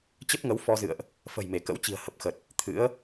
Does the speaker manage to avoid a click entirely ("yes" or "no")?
yes